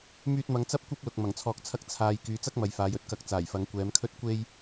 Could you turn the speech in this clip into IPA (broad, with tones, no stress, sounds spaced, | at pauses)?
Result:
m yː˧ t̚ m ɐ˨˧ ŋ t͡s ɐ˥ p̚ kʷ ɐ˥ p̚ l ʊ˨ k̚ m ɐ˨˩ ŋ t͡sʰ ɔː˨ k̚ t͡sʰ ɐ˧ k̚ t͡sʰ aː˨ j k yː˨˧ t͡s ɐ˥ k̚ m ɐ˨ j f aː˨˧ j ɵ˧ t̚ k ɐ˧ k̚ t͡s aː˨˩ j f ɐ˨˧ ŋ kʷ ɛː˨˧ m kʰ ɵ˥ t̚ kʷ e˥ j